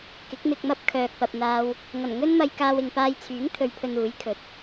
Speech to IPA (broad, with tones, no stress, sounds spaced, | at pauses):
k ɪ˨˥ k̚ m ɪ˧ k̚ m ɐ˥ p̚ kʰ œː˨ k̚ p ɐ˨ p̚ n̪ aː˧ w | ŋ ɐ˨˩ n ŋ ɵ˥ n m ɐ˧ j k aː˧ w ɪ˨ ŋ p aː˧ j t͡sʰ yː˨˥ ŋ t̪ʰ ɵ˨ ɥ pʰ ɵ˨ n uː˨˥ j kʰ ɵ˨˥ t̚